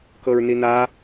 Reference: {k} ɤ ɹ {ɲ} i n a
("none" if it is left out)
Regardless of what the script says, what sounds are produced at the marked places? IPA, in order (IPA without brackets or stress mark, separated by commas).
k, n